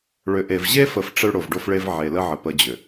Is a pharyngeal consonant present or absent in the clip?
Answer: present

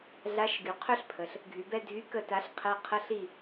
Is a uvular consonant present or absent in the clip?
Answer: present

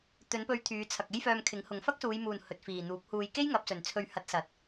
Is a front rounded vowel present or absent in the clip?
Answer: present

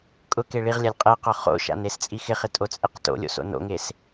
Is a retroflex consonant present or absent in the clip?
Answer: present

